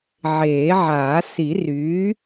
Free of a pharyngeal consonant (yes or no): no